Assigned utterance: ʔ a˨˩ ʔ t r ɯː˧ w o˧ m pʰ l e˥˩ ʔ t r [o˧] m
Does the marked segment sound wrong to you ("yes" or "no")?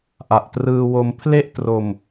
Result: no